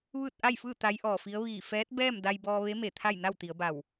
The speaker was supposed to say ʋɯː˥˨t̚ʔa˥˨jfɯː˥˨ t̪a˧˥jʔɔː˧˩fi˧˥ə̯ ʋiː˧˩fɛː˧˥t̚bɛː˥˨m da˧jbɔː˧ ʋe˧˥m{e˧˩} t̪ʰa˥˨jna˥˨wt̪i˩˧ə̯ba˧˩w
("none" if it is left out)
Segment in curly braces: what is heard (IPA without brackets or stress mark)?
e˧˩